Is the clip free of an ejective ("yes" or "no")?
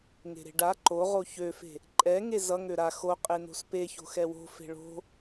no